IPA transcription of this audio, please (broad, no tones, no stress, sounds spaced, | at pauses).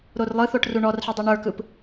ɾ o r lˠ ɯ θ o ʈ r u ɳ ɔ r ħ i dˤ u ɳ ə˞ k ɯ p